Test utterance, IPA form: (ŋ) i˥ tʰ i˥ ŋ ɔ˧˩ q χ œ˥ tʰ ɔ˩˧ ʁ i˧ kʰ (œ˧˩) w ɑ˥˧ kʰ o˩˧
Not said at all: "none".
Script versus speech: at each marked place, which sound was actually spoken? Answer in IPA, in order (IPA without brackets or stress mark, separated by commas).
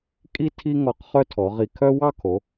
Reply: kʼ, œ˥